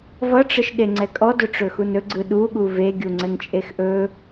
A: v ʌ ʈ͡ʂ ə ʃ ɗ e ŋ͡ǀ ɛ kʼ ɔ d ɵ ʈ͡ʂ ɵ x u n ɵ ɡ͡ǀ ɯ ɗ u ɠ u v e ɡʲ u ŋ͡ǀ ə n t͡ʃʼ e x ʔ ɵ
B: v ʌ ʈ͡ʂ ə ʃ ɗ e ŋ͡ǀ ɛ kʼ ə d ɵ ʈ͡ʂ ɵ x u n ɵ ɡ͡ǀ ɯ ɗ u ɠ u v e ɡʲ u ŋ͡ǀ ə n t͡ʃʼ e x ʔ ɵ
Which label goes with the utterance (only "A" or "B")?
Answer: A